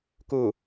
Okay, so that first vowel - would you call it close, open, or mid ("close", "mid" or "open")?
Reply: close